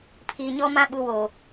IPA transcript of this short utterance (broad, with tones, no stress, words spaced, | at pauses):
pʰiː˨ɲɔ˦mã˦ ɓu˨woː˨